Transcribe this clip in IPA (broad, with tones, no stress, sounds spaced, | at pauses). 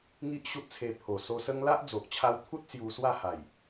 ŋ i˦ ʔ ɕ u˦ t̚ t͡sʰ e˧ pʰ o˨˩ s o˧ s ə˦ ŋ l a˦ ʔ d͡z o˨ ʔ t͡ɕʰ a˧ w t̪ʰ u˦ t̚ s j u˧ s w a˥˧ h a˨˩ j